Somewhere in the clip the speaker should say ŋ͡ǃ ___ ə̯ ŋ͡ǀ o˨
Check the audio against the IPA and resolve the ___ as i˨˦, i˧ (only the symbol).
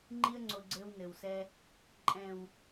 i˧